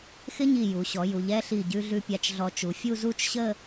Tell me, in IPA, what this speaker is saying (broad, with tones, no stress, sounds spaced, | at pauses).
x ɪ˥ ɲ i˧˩ j u˩˧ ɕ ɔ˩˧ j u˩˧ ʎ ɛ˥˧ ɬ i˧˩ ɟ ʉ˧ ɮ ʉ˧ pʲ a˧ t͡ʃ ɮ ɔ˧ t͡ʃ u˩˧ fʲ u˥˧ z u˥˧ t͡ʃ ɕ ə˥˧